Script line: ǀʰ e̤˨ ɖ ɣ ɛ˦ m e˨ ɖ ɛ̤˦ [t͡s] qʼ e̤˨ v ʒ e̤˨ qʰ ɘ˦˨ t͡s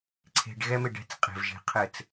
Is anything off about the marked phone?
no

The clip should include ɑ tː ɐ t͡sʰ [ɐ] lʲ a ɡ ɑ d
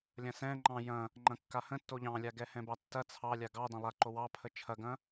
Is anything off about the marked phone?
yes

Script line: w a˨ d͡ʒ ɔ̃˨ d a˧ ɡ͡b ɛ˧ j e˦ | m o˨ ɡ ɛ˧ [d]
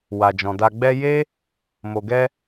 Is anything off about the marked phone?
yes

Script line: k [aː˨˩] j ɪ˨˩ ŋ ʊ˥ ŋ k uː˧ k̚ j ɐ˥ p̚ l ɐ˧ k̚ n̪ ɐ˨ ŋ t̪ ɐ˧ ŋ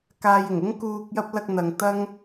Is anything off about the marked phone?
yes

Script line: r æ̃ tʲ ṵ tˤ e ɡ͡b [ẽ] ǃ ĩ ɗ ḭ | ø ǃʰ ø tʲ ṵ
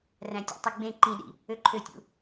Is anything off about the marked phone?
no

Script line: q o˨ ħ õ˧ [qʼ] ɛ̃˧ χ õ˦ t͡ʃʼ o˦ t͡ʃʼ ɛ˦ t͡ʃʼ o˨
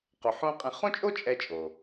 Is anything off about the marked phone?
no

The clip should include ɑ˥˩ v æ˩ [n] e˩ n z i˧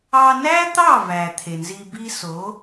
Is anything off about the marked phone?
yes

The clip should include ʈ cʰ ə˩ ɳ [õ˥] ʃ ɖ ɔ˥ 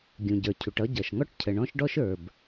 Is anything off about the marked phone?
yes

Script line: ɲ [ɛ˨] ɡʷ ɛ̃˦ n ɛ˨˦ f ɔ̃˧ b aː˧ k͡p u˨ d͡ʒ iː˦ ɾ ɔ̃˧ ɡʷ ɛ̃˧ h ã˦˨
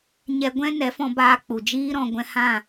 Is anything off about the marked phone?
yes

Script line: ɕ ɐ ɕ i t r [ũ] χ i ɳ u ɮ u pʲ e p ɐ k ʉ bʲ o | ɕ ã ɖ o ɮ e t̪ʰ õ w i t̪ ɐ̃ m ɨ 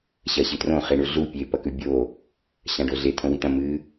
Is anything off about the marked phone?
yes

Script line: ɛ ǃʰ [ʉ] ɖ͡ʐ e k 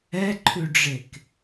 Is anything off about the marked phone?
no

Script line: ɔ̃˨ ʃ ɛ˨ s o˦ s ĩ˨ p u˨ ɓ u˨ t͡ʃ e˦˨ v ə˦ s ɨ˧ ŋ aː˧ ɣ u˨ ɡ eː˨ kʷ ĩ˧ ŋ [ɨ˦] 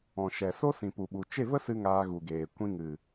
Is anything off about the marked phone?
yes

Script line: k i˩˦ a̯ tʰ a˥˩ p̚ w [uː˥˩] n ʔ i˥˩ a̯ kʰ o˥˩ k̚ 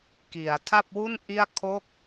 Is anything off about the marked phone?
yes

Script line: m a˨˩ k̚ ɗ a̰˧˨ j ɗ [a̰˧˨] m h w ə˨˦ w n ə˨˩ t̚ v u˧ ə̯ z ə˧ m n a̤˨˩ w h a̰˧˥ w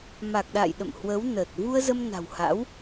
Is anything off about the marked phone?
yes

